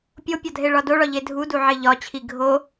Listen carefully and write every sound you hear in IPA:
pʲ o pʲ ɒ dʱ e ɭ ɒ d o ɭ ɒ ʎ e dʱ u d u ʕ e ʎ ɒ t͡ɕʰ i ɡʱ o

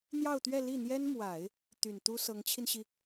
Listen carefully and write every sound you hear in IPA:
n̪ j ɑ˥˧ ʊ̯ t̪ ɥ ɛ˥˧ l i˥˩ n̪ j ɛ˥ n m w a˨˩˦ ɪ̯ | t̪ y˨˩ n t̪ u˥ s ɤ˧˥ ŋ t͡ɕʰ i˧ n ɕ i˩

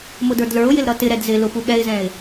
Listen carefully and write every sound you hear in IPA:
m ʊ d ə˞ d l ə˞ ʊ̯ j ɪ l ɾ ʌ t ɪ ɾ ɛ d z ɪ l ʊ p u ɠ ɛ ɪ̯ z ɛ̃ ɪ̯

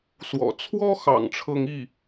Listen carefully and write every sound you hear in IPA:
s w ɔ̰˨˩ t͡sʰ w ɔ˥ x ɑ̰˨˩ ŋ ʈ͡ʂʰ ɤ˥˧ ŋ i˥˩

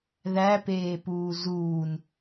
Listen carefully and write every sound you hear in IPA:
ð æ p eː p uː z uː n

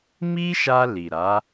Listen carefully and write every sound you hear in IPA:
m i˦ ʃ a˧ l i˨ ɾ a˨˦

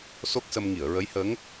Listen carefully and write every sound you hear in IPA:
s o˦˥ k̚ s ə˧ m ŋ i˨˩˨ ə̯ ɹ ə˧˥ j h əː˧˥ ŋ

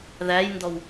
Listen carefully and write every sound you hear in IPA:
ð æ j n d ɔ w

